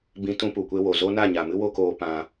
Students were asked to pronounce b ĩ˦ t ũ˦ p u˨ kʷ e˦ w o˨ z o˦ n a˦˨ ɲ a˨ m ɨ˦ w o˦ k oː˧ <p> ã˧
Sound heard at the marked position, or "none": p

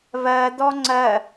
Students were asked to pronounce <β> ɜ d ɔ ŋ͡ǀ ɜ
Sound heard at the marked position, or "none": β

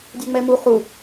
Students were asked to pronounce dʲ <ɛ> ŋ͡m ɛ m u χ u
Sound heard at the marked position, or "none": ɛ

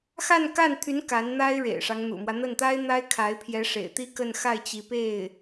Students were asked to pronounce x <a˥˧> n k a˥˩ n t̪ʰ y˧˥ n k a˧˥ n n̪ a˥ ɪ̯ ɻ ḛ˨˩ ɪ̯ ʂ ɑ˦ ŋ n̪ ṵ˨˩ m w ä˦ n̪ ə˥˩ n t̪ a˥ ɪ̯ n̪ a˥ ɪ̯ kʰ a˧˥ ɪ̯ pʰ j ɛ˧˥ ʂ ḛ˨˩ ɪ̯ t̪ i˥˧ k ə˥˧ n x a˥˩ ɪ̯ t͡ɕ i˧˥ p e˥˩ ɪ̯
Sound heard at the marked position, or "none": a˥˧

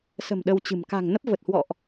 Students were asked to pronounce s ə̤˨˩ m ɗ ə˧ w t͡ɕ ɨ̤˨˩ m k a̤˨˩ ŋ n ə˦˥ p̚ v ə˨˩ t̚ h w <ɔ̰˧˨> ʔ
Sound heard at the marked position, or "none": ɔ̰˧˨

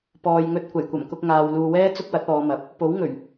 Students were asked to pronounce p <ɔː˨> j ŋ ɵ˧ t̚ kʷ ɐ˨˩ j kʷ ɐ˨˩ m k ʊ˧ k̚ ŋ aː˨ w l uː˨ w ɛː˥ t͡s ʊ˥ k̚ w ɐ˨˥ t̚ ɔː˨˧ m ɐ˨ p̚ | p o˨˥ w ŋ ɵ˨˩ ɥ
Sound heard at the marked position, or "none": ɔː˨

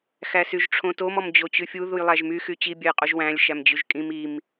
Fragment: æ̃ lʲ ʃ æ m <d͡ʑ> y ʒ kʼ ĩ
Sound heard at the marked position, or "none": d͡ʑ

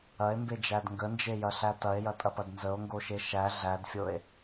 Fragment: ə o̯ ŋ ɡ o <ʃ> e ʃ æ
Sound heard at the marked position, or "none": ʃ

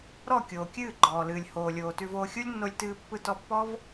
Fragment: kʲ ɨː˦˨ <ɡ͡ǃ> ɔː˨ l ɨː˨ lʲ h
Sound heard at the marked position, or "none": ɡ͡ǃ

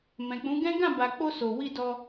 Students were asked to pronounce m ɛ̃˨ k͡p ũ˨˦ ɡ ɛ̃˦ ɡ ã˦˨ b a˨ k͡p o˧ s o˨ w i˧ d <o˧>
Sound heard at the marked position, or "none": ɔ˧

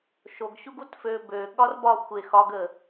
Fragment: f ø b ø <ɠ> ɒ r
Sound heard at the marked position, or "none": ɠ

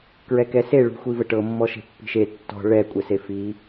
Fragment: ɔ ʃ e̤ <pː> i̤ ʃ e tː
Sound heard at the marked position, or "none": pː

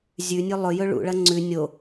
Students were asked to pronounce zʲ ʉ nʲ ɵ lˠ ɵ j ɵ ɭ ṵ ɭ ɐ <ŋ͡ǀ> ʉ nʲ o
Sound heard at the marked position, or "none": ŋ͡ǀ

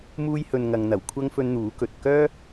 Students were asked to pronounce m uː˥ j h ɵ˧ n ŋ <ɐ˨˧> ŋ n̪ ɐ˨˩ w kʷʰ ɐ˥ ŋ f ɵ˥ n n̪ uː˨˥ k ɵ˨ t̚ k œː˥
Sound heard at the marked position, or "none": ɐ˨˧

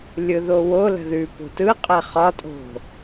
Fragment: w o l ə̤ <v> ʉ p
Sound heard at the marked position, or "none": ð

